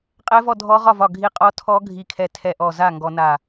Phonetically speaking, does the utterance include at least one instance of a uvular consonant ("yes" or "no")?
yes